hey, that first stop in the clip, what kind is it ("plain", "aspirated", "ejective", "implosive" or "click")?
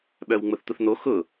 implosive